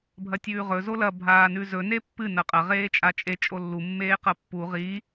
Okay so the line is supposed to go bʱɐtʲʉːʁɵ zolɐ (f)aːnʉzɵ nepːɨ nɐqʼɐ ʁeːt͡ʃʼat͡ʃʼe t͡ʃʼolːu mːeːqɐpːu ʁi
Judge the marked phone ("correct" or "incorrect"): incorrect